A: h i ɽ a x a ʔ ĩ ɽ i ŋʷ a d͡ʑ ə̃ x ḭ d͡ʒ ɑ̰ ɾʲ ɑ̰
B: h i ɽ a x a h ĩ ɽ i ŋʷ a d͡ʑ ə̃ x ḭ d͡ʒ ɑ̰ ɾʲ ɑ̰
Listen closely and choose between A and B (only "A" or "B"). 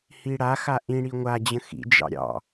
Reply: A